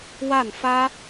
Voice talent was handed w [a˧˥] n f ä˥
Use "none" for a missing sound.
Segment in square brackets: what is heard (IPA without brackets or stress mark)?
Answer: a˥˩